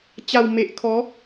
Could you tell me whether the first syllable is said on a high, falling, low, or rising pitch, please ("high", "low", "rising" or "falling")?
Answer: low